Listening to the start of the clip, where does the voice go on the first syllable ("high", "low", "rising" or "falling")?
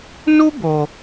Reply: high